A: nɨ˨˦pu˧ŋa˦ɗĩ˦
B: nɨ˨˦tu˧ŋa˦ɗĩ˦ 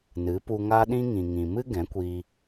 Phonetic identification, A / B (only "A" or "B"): A